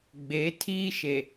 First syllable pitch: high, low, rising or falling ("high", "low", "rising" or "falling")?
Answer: rising